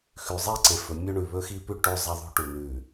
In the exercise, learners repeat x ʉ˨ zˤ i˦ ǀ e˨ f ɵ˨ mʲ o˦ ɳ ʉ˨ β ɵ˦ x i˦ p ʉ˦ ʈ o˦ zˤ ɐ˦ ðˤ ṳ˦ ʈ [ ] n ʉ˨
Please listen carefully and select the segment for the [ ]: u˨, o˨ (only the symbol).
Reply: u˨